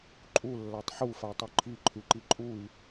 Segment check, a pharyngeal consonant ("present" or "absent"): present